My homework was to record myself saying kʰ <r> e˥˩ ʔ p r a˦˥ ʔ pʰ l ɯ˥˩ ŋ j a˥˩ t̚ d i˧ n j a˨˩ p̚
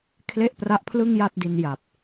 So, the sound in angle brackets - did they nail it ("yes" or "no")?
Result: no